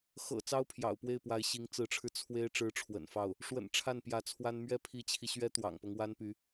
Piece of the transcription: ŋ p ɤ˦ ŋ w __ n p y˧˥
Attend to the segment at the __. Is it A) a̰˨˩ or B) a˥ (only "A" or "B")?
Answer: B